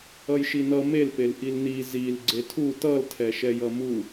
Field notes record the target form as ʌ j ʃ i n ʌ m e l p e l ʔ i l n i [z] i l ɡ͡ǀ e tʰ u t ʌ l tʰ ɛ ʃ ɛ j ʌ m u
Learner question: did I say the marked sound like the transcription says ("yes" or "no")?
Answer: yes